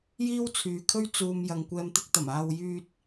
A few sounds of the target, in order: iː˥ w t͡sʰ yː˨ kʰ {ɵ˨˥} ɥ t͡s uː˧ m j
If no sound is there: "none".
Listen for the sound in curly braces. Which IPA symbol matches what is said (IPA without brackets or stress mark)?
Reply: ɵ˥